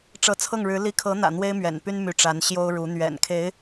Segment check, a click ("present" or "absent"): absent